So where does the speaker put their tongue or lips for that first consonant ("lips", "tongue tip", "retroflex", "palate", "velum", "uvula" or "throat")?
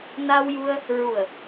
tongue tip